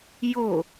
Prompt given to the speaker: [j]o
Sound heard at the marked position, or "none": j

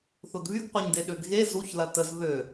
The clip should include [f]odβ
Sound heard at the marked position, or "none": θ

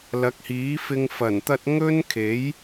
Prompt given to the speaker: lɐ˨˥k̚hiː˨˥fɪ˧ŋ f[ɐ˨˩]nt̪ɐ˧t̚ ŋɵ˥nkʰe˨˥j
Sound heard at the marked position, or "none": ɐ˨˩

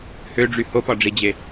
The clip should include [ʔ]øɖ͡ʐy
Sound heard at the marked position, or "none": h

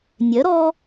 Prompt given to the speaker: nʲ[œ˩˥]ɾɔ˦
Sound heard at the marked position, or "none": œ˩˥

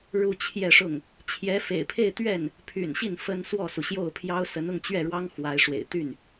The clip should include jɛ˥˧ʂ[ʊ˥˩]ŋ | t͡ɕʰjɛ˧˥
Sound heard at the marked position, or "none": ʊ˥˩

